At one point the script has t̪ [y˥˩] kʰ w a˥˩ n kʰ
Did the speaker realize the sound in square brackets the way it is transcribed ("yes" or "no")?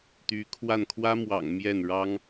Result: no